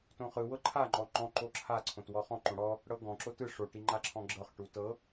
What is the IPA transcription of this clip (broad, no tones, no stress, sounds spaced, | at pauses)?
t õ χ ɯ w ɤ ǃʰ a ŋ͡ǃ ɔ ŋ͡ǃ ɔ̃ ǃ o ǁʰ a ǀʰ õ t w ɔ χ ɔ̃ ǃ õ ɽ ɔ | ɽ ɤ ɡ ɔ̃ ǁ o t ɯ ʂ o ʈ i ŋ͡ǃ a ǁʰ ɔ̃ ɡ͡ǁ ɤ χ ʈ u t ɤ